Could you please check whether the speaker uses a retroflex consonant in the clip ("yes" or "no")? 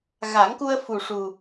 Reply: yes